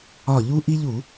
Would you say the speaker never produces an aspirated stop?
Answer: yes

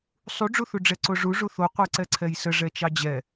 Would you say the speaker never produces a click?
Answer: no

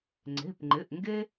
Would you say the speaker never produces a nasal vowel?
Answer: yes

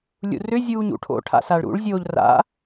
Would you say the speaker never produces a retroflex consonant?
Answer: no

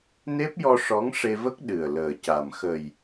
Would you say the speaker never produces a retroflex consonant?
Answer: no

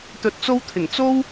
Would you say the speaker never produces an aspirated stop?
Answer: no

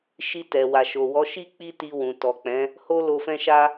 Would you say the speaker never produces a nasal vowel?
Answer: no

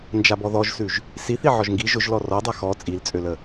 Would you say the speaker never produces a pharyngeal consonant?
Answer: no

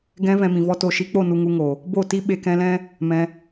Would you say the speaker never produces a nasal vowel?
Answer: no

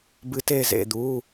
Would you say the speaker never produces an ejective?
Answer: yes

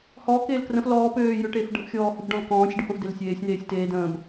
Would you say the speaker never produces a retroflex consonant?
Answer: no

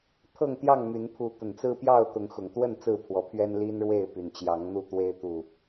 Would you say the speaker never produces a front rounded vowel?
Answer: no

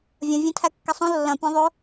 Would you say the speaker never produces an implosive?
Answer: yes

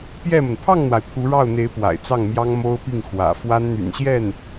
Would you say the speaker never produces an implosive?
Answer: yes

